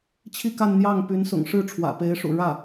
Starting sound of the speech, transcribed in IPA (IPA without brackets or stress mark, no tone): t͡ɕʰ